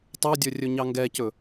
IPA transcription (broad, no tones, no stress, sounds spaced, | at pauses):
tˤ o dʲ ɵ rʲ ɵ ɲ ɑ ŋ ɡ ɛ c ɵ